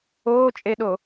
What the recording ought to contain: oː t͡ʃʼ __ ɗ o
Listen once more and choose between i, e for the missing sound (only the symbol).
e